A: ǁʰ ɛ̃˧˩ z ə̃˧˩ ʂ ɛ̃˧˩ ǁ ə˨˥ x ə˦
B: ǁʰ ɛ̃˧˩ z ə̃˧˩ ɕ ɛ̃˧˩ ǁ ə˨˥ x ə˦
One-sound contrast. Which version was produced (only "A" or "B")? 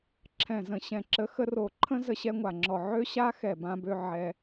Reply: B